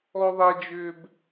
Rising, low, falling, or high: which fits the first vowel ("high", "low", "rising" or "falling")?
high